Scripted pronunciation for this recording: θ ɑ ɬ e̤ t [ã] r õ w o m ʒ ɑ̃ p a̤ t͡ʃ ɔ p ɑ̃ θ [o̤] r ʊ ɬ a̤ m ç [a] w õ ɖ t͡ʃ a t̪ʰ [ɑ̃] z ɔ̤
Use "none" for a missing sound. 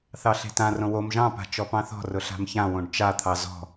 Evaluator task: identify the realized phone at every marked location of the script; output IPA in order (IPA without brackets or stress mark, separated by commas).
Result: ã, ɔ̤, ã, ɑ